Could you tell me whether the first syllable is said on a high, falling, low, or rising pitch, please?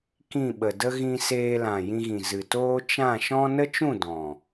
falling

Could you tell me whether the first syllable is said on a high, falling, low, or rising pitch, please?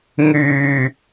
low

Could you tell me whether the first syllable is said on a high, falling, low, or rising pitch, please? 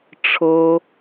high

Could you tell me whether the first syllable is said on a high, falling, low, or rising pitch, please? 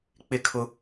falling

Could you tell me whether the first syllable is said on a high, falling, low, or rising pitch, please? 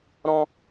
high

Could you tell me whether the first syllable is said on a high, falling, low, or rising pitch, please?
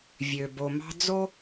low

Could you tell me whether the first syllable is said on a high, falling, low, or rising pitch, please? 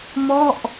falling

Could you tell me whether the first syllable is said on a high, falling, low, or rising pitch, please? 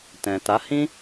low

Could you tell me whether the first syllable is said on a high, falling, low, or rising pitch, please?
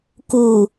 low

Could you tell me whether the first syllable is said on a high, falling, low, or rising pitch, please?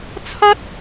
high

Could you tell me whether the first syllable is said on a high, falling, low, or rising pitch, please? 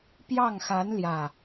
falling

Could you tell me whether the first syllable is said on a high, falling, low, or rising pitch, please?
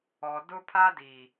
low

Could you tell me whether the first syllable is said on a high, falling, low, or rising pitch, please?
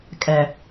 low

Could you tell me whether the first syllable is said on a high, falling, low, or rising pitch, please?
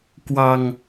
low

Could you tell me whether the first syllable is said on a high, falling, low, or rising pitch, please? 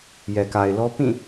low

